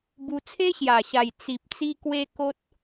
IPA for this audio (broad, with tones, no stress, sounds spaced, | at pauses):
b u˧ t͡sʰ e˦ ɕ j a˨˩ ɕ a˨˩ j t͡s i˨ p̚ t͡s i˧ k w e˧ k o˦ t̚